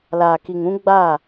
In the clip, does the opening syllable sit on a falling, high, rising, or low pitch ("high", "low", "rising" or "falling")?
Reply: low